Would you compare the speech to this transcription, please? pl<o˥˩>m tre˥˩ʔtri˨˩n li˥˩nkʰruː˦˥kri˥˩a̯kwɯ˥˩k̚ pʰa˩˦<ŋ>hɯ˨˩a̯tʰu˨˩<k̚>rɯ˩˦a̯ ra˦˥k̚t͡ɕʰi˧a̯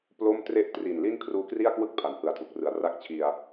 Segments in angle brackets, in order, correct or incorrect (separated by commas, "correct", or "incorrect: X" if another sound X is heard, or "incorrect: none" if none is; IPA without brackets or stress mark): correct, incorrect: n, correct